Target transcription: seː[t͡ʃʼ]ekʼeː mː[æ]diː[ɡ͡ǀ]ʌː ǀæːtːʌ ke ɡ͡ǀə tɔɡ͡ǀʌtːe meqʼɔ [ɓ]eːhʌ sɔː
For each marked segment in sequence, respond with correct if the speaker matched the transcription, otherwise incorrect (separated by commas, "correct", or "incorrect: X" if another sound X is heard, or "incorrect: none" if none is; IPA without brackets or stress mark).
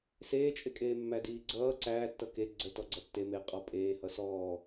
correct, correct, correct, incorrect: pʼ